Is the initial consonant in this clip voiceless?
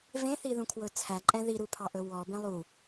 no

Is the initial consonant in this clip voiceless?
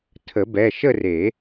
yes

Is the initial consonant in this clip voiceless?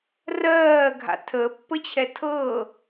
no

